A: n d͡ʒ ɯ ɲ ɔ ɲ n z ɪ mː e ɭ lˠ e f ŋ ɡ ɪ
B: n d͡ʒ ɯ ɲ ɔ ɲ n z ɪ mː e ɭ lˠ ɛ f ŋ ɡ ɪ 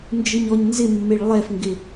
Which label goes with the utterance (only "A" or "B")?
B